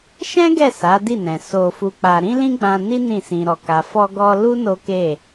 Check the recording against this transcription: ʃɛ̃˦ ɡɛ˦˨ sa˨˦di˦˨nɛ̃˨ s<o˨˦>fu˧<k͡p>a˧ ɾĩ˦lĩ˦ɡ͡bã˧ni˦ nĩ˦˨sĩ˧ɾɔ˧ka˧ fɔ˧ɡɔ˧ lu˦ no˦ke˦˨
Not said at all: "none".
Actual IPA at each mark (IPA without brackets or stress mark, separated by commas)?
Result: o˧, k͡p